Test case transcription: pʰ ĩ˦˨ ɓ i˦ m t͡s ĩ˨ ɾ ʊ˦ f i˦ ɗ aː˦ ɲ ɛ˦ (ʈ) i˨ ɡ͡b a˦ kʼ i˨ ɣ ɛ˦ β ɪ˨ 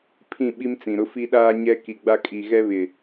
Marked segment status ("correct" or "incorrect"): incorrect